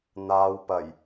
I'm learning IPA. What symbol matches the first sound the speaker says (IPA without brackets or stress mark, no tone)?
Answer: n̪